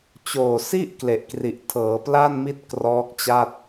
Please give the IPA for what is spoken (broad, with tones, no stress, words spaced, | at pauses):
t͡ɕoː˨˩si˥˩ʔ kle˨˩ʔkri˨˩ʔtʰɤː˩˦pla˥˩n mi˥˩t̚krɔː˦˥k̚t͡ɕa˥˩t̚